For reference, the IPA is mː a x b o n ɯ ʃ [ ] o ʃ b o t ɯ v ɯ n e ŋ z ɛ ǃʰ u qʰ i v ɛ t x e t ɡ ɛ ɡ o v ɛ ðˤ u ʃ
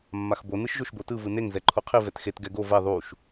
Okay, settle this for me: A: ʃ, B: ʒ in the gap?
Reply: B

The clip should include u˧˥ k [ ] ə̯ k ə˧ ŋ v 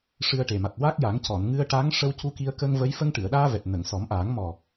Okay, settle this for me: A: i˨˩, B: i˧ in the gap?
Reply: B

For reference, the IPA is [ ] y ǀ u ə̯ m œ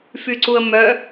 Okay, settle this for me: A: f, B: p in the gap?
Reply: A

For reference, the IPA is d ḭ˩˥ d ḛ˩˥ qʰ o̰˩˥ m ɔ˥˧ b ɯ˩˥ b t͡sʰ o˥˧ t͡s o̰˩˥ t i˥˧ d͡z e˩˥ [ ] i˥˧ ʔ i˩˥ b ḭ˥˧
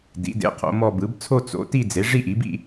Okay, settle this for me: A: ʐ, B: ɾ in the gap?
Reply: A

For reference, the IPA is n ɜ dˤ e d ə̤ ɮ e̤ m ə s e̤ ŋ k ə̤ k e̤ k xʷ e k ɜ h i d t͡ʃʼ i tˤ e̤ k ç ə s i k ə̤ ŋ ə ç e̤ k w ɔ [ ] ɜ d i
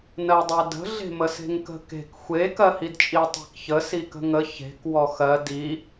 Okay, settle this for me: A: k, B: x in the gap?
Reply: B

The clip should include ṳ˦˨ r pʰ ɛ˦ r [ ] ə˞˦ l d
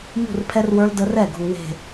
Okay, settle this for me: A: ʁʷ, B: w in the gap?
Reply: B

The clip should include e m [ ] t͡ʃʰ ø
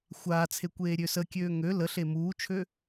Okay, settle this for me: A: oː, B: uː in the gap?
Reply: B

